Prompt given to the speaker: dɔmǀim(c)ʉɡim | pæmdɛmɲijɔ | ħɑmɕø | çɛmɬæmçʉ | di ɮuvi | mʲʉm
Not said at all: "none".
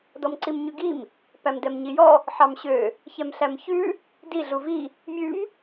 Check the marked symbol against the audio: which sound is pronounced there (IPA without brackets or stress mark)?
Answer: ɲ